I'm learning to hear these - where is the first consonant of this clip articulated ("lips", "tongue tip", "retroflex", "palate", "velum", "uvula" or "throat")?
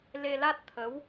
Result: tongue tip